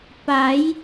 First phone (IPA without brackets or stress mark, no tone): p